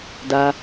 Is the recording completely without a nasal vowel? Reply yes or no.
yes